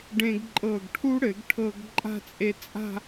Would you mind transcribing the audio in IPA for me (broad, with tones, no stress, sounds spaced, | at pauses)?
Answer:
ɖ ẽ˧ ɡ ǃʼ ɤ˧˩ ɡ ʈʰ u˥ ɽ ɘ˩˧ ɡ ʈʰ ɤ˧ ɡ ǃʼ a̤˥˧ t͡sʼ e˧ t͡sʼ a̤˥˧